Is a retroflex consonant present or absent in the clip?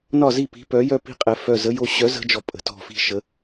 absent